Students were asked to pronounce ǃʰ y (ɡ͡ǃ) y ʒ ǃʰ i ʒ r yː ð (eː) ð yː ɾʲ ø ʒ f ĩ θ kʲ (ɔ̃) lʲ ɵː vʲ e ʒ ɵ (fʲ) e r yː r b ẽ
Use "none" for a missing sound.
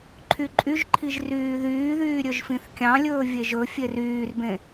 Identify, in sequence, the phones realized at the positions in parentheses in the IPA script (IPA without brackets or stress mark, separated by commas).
ǃʼ, yː, ɑ̃, fʲ